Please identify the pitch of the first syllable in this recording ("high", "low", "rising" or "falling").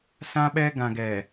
high